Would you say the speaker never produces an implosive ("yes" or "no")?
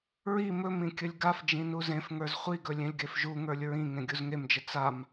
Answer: yes